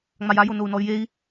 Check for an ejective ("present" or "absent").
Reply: absent